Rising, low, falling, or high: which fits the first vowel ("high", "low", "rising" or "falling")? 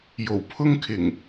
low